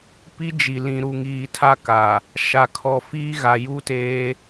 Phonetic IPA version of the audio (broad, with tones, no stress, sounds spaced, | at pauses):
p i˦ d͡ʒ i˨ l ĩ˨ ɾ u˨ ŋ iː˨ tʰ a˦ k a˨ | ʃ a˨ kʰ ɔ˨ f iː˦ ɣ a˨ j u˦ t eː˦